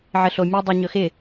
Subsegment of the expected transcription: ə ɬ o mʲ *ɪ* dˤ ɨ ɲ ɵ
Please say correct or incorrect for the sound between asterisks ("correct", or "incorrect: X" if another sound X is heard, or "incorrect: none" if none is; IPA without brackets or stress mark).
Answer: incorrect: ɨ